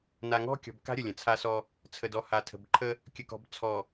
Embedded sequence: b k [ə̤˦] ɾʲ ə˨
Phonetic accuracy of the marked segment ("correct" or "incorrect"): incorrect